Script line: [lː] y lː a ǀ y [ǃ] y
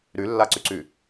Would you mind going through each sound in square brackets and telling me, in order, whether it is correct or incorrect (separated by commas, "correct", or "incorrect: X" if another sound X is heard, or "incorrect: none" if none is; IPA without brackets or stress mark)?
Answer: incorrect: ɾ, incorrect: ǀ